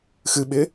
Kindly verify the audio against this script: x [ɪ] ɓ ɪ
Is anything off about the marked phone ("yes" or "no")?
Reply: yes